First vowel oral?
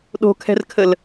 yes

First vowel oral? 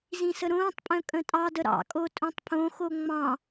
no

